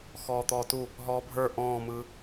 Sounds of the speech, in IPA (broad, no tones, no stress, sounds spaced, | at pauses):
x ɔː t̪ ɔː t u | ɦ ɔː bʱ ə˞ ʔ ɔ̃ː m ɯ